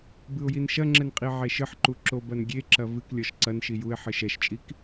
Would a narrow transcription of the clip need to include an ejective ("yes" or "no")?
yes